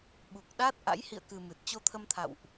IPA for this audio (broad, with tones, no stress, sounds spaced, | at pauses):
ɓ u˨˩ k̚ ɗ aː˦˥ t̚ ʔ a̰˧˥ j h ḭ˧˨ ə̯ k ɨ˨˩ m ɨ˨˩ t̚ t͡ɕ o˧ t̪ʰ ə˧ m t̪ʰ a̰˧˨ w ʔ